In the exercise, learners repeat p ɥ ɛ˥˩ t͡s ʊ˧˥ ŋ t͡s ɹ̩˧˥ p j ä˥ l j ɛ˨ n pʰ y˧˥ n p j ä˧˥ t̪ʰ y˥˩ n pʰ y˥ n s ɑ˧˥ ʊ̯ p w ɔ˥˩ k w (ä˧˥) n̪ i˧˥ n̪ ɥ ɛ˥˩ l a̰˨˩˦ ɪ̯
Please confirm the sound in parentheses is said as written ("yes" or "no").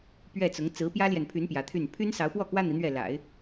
no